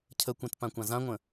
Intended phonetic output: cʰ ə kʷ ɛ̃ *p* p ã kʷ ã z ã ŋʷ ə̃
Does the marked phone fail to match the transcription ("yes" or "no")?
yes